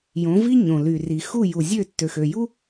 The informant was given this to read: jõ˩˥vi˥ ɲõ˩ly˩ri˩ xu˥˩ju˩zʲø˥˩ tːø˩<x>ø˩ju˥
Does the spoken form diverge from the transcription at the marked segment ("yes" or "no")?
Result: no